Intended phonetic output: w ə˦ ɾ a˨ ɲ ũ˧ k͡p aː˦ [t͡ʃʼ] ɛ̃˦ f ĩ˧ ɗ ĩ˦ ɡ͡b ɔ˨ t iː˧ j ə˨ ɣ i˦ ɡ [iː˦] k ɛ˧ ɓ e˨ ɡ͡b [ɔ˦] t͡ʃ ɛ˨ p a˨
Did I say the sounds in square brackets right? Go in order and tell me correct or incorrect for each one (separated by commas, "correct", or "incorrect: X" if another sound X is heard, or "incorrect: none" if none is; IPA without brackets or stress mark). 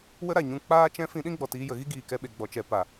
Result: incorrect: t͡ʃ, incorrect: iː˨, incorrect: ɔ˨